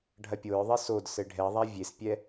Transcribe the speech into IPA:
ɖʱ ɐ pʲ o ɹ ðˤ i s o d s ɘ ɖʱ ɛ ðˤ a vʲ e s pʲ ɛ

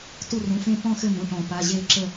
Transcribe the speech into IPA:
t u˦˨ r ũ˩˧˩ f ẽ˦˨ p ɔ̃˦˨ x ɘ˦˨ m ũ˩˧˩ ʈ ɔ̃˨˩˦ p a˩˧˩ ʑ e˦˨ ǁ ə˦˨

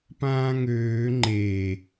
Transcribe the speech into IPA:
p ãː ŋ øː ŋ͡ǃ e

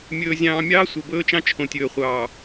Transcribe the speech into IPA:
mʲ ɵː˨ zʲ ɑ̃ː˨ mʲ ɑː˦ sʷ ɤ˨ b ɵː˦ t͡ʃ ɑ̃˦ t͡ʃʰ õ˨ tʲ ɵː˨ χʷ ɑː˨

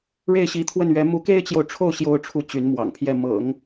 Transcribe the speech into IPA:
ɻ e˥˩ ɪ̯ ɕ i˧˥ t̪ʰ w ə˥˩ n ɥ ɛ˧˥ m u˧˥ k e˥ ɪ̯ t͡ɕ j o˨ ʊ̯ ʈ͡ʂʰ o˥˩ ʊ̯ ɕ j o˥ ʊ̯ ʈ͡ʂʰ u˥˩ t͡ɕ y˧˥ n m w ɑ̰˨˩ ŋ pʰ j ɛ˥˩ m ɤ̰˨˩˦ ŋ

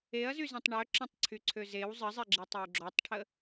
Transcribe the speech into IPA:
e ɐ̯ z y z ɛ̃ tˤ ɳ œ ǁ ə̃ tˤ ǀʰ y ǀʰ ø z e w zˤ ə zˤ ɛ ɡ͡ǁ i tˤ ø w ɡ͡ǁ ɔ tˤ ʈʰ ə

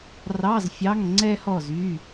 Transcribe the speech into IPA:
r ɑ˧˥˧ z fʲ ɑ˧˥˧ ŋ ŋ͡ǀ ɛ˥ h ɔ˥˨ z y˧˥˧

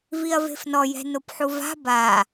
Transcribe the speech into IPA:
v i ɐ̯ v e̤ f n ɔ j ɛ̤ n o p ħ u v a̤ b a

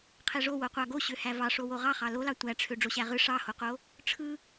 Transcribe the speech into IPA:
qʰ e ʐ o w o qʷ ɑ ɡ o ɕ ø h æ v ɑ ʂ o w o ʁ ɑ χ ɑ l o l ɑ tʷ æ ʈ͡ʂʰ ø ɖ͡ʐ o ɕ æ ʁ ɯ ʂ ɑ h o q o | ʈ͡ʂʰ ɯ

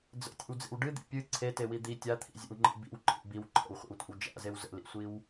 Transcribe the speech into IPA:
d͡z ə̰ tʲ ḛ w d͡z ḛ w ɖ ɨ d̪ ḭ pʲ ɨ ǀʰ e t e w i d̪ i tʲ a t̪ʰ ḭ zʲ ḛ w ŋ͡ǃ ḭ b ḭ w ǃʰ ḭ b i w ǃʰ ə̰ w χʷ ḛ w tʷ a̰ w d͡ʒ a̰ z e w z ə̰ l ḭ sʷ i w

